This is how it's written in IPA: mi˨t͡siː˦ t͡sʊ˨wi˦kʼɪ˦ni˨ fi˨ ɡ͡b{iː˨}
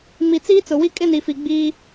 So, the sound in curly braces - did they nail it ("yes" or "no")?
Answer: no